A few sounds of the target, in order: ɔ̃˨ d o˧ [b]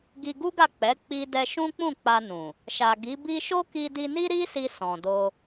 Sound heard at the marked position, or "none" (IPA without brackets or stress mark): none